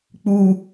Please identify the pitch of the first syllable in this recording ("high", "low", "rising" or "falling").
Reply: low